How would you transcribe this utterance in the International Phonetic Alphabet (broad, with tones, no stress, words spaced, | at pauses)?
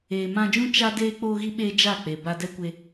eː˨mã˧d͡ʒũ˦ t͡ʃa˦deː˦ k͡poː˦ɣi˦ ɓeː˦ d͡ʒa˦˨k͡pe˨ ba˧dɛ˦kʷe˧